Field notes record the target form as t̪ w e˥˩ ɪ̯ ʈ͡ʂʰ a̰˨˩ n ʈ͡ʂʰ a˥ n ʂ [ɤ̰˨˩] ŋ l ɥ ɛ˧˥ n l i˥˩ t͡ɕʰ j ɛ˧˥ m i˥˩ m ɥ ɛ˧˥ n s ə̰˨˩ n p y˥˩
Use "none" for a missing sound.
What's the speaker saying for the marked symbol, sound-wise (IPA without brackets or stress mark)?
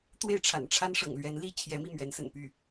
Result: ɤ̰˨˩